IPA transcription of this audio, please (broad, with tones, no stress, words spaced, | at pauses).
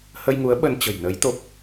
hə˧jŋu˨˦ə̯ɓə˧n t͡ɕə̤˨˩jnə˨˦jt̪o˦˥p̚